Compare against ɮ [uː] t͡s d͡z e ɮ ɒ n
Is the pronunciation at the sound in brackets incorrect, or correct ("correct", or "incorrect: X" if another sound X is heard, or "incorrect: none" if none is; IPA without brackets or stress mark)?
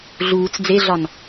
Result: correct